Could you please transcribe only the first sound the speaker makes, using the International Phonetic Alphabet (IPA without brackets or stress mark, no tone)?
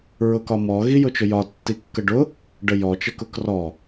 ɹ